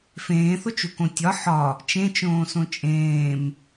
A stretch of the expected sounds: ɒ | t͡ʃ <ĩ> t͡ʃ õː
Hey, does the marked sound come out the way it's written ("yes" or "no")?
no